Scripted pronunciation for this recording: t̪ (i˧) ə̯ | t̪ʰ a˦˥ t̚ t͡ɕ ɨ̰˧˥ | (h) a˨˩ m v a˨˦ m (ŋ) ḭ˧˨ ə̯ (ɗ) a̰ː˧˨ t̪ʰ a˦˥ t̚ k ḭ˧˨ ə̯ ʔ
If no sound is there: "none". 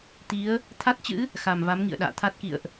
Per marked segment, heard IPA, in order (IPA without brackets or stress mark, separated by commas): i˨˦, x, ŋ, ɗ